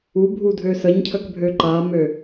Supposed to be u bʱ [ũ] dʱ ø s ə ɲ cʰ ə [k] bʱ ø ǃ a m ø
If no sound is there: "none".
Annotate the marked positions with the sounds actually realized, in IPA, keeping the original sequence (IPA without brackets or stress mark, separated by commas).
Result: u, k